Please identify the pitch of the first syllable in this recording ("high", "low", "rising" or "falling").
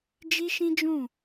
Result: high